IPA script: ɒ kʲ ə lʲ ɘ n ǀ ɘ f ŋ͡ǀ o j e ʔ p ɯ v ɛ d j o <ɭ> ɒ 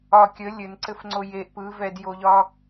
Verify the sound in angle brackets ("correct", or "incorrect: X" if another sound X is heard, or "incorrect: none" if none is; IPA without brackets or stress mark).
incorrect: ʎ